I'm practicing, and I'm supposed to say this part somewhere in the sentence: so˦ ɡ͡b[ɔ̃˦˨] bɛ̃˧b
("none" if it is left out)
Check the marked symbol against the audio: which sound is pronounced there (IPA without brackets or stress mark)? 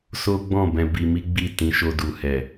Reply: ɔ̃˦˨